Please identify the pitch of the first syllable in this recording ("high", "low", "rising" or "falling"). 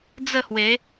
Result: falling